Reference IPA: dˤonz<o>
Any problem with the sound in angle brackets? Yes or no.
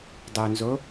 no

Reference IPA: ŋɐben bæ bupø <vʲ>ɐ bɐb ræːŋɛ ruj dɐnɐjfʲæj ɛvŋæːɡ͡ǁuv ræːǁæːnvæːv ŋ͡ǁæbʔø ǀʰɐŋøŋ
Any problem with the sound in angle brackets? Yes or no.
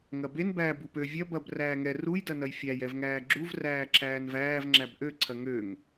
no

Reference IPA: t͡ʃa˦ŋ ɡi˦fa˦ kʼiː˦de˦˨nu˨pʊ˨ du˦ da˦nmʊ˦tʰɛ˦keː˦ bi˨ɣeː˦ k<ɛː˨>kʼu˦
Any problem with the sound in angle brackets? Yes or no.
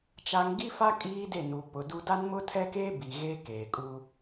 yes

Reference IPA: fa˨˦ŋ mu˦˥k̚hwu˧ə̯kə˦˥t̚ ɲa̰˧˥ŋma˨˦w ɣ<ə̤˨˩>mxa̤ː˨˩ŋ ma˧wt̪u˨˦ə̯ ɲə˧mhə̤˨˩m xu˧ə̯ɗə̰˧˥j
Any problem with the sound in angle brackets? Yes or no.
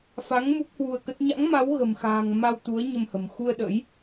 no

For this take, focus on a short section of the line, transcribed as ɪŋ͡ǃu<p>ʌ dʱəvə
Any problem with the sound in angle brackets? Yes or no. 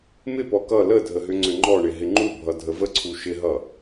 yes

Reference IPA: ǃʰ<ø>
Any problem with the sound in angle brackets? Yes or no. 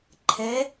yes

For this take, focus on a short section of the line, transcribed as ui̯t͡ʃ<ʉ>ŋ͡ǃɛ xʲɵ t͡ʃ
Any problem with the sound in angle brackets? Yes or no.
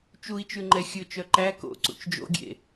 no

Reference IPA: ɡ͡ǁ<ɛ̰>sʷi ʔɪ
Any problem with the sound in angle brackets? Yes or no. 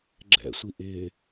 no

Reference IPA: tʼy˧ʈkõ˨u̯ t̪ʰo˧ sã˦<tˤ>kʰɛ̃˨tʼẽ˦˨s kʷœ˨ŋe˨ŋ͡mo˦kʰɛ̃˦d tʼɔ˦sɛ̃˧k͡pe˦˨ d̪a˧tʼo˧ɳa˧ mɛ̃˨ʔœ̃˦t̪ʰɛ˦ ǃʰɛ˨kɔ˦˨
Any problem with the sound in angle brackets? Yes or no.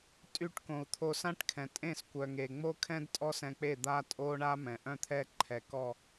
yes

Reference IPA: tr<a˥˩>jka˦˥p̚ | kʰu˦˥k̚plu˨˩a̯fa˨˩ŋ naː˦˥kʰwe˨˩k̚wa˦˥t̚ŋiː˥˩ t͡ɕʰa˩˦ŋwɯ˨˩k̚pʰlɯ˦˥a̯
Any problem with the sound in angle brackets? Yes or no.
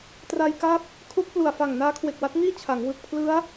yes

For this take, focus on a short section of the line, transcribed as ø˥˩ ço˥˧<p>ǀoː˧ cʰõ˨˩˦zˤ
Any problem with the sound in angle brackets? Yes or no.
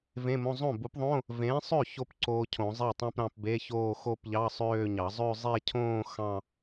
no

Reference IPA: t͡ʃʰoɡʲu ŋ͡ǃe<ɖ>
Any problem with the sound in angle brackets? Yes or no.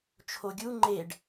no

